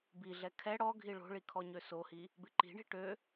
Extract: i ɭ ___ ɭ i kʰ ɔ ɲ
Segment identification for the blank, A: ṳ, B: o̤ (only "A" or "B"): B